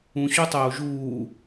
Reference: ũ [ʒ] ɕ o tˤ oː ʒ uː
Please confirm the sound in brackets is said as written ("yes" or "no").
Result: no